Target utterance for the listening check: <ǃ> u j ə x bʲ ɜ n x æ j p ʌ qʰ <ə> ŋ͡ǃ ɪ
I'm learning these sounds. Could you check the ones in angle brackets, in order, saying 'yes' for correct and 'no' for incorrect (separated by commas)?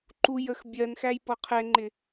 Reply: yes, no